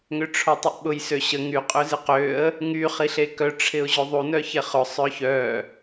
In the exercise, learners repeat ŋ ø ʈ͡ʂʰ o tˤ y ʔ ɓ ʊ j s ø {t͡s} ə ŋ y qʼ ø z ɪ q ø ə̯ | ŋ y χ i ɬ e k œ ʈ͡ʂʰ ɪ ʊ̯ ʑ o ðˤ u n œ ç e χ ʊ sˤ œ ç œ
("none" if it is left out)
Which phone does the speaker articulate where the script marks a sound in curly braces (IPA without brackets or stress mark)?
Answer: ɕ